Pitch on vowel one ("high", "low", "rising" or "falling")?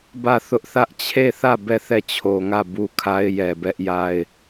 falling